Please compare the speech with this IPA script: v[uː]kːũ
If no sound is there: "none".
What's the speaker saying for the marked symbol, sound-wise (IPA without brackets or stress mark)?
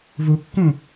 u